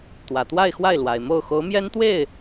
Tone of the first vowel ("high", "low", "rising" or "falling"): low